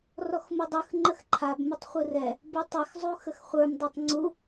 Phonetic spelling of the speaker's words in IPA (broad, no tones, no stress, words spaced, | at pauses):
rɔxmudˤɯx ŋ͡ǃəxǃʰab mʊtˤχʷɯrɛ | butˤex zˤuxəxχʷə˞m dˤetˤŋ͡ǀu